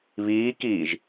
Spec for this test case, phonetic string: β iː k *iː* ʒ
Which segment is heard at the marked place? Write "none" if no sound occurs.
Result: iː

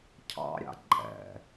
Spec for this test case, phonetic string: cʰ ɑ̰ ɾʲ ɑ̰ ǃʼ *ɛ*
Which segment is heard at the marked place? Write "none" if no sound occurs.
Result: ɛ̰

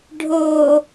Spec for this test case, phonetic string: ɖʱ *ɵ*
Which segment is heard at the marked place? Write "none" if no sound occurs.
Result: o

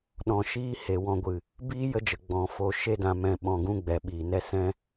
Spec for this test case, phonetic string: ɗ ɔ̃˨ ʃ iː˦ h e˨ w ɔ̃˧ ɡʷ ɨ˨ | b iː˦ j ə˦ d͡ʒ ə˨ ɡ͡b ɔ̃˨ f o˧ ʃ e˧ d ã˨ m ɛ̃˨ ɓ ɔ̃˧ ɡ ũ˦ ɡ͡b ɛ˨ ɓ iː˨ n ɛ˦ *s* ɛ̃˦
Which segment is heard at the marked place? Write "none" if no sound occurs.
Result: s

